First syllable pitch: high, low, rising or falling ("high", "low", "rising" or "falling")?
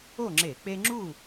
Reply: falling